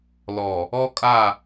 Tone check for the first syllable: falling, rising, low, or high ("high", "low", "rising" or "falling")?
low